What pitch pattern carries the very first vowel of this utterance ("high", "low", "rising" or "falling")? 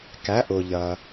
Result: rising